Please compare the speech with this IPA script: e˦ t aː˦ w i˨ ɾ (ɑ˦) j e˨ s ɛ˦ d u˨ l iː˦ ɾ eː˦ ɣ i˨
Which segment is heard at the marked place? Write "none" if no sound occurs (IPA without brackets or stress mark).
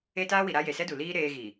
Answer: a˦